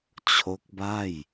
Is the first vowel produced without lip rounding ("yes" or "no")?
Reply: no